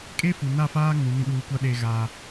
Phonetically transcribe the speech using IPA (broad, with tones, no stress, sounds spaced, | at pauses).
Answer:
kʼ e˦ f u˨ n a˦˨ f aː˦ ŋ ũ˨˦ n ĩ˨ ɗ uː˨ kʷ a˦ ɗ eː˨ ɣ aː˨